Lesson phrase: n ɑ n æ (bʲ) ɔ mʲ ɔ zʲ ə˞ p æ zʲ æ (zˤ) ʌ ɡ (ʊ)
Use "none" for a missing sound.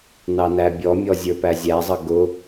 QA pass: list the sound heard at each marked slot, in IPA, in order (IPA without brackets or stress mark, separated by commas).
bʲ, zˤ, ʊ